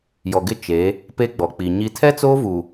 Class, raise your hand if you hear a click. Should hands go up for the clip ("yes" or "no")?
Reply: no